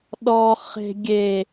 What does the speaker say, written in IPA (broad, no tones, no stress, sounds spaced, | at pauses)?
ɗ ɔ χ e̤ ɡʲ e